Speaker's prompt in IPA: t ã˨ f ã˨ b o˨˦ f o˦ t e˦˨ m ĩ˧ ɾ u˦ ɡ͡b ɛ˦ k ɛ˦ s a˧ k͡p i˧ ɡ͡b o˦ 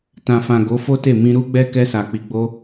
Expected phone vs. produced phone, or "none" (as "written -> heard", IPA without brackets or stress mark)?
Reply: b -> ɡ